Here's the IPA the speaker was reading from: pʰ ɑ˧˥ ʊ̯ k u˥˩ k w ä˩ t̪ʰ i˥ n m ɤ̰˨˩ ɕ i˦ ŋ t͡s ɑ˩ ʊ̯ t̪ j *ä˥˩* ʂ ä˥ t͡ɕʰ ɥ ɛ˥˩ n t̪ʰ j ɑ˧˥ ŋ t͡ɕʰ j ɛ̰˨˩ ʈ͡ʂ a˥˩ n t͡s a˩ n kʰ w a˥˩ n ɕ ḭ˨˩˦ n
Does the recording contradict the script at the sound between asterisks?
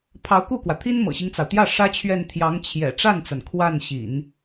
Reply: no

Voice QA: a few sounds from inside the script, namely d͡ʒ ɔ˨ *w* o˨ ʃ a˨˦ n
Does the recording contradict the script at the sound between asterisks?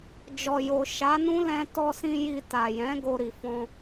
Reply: yes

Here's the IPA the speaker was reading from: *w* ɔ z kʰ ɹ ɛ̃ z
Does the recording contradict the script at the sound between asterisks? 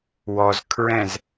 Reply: no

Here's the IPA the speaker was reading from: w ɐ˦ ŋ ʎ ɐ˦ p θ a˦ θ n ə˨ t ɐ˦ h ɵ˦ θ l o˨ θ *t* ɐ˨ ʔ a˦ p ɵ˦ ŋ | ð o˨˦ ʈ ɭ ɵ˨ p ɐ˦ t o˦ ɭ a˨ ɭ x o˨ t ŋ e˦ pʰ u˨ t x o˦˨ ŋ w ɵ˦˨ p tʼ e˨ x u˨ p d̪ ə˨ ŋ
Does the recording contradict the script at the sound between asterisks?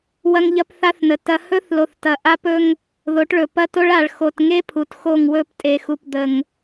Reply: no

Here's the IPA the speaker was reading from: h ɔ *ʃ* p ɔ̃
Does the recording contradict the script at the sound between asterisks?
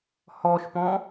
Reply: no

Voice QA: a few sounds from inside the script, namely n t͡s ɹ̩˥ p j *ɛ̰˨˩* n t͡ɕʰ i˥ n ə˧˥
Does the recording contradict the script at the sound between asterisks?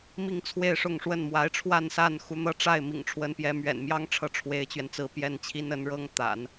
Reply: yes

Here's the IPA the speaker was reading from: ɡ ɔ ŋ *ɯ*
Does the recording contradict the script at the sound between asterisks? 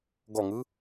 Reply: no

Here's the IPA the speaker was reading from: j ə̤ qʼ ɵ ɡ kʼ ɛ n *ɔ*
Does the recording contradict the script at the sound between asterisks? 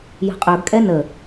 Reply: yes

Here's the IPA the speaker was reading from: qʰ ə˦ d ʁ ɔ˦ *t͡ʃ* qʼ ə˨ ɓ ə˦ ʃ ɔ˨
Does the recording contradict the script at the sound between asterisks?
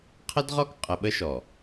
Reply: yes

